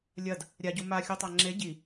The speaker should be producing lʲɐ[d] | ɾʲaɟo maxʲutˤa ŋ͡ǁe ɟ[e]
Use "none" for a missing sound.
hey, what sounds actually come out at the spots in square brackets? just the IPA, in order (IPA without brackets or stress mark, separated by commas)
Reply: d, i